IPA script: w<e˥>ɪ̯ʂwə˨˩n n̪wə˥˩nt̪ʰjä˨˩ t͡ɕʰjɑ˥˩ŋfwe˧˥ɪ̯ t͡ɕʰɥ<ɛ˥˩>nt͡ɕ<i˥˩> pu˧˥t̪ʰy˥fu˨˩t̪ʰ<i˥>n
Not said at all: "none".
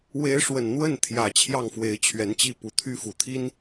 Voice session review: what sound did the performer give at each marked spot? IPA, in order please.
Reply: e˧˥, ɛ˧˥, i˥˩, i˥

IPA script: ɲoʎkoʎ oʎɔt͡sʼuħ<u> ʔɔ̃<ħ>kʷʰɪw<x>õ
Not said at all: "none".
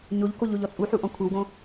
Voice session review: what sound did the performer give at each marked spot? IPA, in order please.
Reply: u, none, ɡ

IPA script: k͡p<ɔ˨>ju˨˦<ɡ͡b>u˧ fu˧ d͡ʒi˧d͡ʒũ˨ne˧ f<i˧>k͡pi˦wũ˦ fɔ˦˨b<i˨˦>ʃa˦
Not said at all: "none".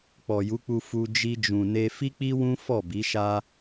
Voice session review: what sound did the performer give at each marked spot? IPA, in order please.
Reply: ɔ˨, k͡p, i˦, i˨˦

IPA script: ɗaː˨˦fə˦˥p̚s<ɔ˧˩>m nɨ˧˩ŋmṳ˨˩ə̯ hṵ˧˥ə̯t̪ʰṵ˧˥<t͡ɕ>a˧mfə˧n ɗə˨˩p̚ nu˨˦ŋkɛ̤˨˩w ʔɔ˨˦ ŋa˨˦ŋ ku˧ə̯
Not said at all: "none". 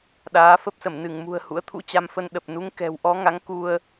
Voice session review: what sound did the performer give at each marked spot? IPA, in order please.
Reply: ə˧˩, t͡ɕ

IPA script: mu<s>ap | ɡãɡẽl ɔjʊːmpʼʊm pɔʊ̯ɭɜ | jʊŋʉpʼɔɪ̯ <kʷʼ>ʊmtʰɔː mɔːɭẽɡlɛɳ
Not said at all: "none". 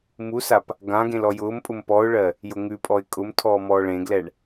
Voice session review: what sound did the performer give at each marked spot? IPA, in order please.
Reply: s, kʼ

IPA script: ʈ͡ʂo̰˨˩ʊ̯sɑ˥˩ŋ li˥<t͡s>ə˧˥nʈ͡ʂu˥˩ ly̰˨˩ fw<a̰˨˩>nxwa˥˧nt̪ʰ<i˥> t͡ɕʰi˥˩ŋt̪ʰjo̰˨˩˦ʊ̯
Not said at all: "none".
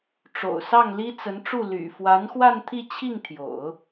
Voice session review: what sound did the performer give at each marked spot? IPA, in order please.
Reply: t͡s, a˧˥, i˥˧

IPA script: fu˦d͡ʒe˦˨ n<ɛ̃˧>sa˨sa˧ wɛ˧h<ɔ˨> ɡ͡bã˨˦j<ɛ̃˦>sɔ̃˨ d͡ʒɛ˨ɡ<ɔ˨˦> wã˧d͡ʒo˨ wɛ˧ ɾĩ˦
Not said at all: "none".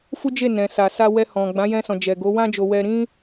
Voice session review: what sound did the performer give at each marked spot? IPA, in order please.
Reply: ɛ̃˨, ɔ̃˨, ɛ̃˧, o˨˦

